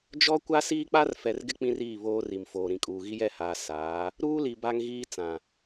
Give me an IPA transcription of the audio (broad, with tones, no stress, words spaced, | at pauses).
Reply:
d͡ʒɔ˦ kʷa˦siː˦k͡pa˦r fɛ˨rɡɪ˦ k͡pĩ˦riː˦˨ βoː˦ri˨m foː˨ɾĩ˨kʼuː˨ ɣi˦jɛ˦˨haː˨ saː˨˦ | ɾuː˦li˨ ba˦ŋɣiː˦ t͡sã˨